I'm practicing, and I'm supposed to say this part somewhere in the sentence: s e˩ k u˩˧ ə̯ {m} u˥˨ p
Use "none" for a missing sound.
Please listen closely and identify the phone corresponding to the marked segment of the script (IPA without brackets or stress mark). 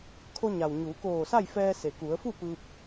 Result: f